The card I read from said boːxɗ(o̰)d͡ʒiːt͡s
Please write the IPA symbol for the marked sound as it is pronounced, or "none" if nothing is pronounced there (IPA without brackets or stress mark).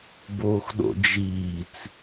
o̰